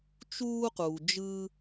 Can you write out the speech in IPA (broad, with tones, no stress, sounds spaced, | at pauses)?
t͡ʃ uː˧ q uː˨ d͡ʒ ɯː˧